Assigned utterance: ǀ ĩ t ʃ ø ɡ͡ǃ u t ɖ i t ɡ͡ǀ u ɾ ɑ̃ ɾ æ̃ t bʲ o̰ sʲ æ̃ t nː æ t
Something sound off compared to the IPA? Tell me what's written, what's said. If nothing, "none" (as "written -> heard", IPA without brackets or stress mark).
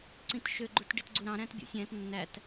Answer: none